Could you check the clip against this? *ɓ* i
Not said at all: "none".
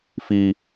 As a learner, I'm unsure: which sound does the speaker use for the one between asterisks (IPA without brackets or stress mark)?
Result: f